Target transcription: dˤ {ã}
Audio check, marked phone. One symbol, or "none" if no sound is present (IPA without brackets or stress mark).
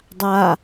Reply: a